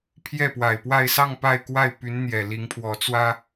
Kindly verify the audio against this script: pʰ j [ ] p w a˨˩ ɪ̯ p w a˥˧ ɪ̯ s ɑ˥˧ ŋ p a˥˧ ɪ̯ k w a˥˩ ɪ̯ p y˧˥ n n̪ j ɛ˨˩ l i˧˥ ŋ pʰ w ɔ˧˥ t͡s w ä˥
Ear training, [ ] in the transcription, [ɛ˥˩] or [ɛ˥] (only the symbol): ɛ˥˩